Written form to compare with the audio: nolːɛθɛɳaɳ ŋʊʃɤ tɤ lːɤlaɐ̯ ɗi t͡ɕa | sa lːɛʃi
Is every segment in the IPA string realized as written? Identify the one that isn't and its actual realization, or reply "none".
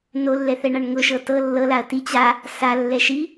ɗ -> t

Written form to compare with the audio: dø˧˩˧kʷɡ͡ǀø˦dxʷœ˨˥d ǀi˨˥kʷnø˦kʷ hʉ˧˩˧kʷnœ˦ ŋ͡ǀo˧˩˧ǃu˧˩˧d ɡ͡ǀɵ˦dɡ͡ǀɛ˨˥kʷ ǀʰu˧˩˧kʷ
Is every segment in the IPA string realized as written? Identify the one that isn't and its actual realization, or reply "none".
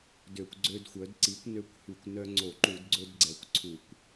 none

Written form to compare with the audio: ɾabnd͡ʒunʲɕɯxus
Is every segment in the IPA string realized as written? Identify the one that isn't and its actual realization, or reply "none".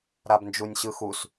none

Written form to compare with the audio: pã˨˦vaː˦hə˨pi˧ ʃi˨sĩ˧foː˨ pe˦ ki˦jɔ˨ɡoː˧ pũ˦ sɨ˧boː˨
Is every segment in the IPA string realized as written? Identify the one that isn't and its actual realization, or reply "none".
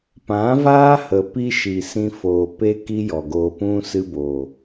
none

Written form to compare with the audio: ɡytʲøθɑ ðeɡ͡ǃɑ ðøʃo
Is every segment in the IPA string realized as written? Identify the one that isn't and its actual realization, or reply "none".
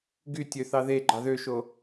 none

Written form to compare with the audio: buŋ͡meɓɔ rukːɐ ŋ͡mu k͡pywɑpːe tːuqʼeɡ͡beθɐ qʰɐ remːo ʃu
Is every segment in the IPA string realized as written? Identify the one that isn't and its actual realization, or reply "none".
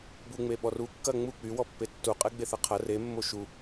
ɑ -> ɔ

